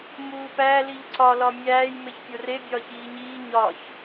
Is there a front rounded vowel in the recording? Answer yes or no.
no